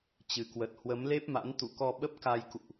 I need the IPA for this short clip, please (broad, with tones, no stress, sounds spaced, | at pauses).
t͡ɕ ɨ˨˩ k w ə˨˩ t̚ h w ə˨˦ m l e˦˥ p̚ m a̰˧˥ n t̪ ṵ˧˨ k ɔ˧ ɓ ə˦˥ p̚ k a˧ j k ṵ˧˨ ʔ